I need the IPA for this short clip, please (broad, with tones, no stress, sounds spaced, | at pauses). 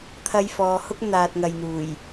t̪ʰ ɐ˧ j f ɔː˨˧ h ʊ˥ k̚ n̪ aː˨ t̚ ŋ ɐ˨ j n̪ uː˨˩ j